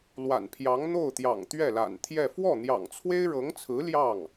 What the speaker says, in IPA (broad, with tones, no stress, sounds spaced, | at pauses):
l w a̰˨˩ n pʰ j ɑ˧˥ ŋ n̪ o˥˩ ʊ̯ t̪ j ɑ̰˨˩ ŋ t̪ ɥ ɛ˥˩ l a̰˨˩ n t̪ʰ j ɛ˥˧ f w ɔ˥˩ n̪ j ɑ̰˨˩ ŋ t͡sʰ w e˥ ɪ̯ ɻ ɤ˧˥ ŋ t͡sʰ ɹ̩˧˥ l j ɑ˥˩ ŋ